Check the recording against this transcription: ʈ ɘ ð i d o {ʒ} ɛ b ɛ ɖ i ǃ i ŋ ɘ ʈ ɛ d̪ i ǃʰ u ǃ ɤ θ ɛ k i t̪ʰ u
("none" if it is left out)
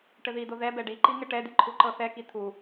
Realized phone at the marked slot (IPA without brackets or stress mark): ð